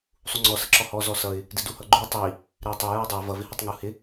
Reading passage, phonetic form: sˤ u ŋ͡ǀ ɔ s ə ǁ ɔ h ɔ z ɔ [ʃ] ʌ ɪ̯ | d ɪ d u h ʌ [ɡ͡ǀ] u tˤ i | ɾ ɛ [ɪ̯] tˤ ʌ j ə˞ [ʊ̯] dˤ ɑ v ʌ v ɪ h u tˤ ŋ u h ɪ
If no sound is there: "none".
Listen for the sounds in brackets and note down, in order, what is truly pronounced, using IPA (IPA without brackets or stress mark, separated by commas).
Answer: s, ɡ͡ǃ, ɪ̯, ɪ̯